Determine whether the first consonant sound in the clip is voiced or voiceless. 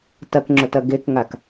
voiceless